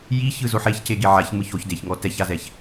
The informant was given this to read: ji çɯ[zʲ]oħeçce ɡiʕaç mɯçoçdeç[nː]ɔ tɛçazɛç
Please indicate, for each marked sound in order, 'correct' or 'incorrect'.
incorrect: z, incorrect: ŋ

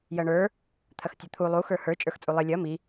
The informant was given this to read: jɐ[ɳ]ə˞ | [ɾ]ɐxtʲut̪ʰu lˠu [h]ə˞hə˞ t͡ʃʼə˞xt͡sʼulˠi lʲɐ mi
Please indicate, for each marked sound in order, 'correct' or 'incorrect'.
correct, incorrect: t̪ʰ, incorrect: x

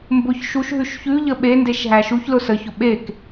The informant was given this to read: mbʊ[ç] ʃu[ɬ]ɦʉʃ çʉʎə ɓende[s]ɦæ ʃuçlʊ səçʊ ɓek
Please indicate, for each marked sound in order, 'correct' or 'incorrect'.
correct, incorrect: ʃ, incorrect: ʃ

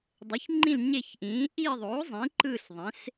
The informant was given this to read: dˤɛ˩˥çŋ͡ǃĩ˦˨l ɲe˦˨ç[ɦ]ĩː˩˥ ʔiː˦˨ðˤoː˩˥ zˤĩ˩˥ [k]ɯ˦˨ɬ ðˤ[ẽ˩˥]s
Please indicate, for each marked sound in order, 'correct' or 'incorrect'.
incorrect: ʔ, incorrect: ǃ, correct

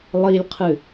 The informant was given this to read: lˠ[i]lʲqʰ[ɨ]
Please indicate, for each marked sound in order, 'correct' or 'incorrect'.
correct, correct

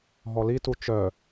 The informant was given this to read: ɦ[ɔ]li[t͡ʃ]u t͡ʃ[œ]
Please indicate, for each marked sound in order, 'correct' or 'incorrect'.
correct, incorrect: t, correct

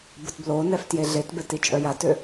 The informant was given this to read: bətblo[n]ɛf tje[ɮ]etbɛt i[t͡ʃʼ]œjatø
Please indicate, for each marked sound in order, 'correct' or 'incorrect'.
correct, correct, correct

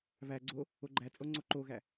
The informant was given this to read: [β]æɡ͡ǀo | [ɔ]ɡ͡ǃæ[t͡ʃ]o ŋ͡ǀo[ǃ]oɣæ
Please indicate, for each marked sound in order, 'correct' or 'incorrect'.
correct, incorrect: o, incorrect: t͡sʼ, correct

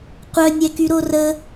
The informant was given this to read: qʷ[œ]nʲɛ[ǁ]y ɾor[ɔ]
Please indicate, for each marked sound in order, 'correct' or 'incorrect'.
correct, incorrect: k, incorrect: ə

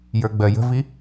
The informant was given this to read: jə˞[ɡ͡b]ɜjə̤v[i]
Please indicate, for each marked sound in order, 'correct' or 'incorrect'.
correct, correct

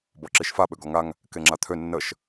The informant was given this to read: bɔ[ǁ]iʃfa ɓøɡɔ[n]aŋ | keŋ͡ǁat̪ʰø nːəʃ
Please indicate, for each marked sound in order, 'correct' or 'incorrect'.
correct, incorrect: ŋ

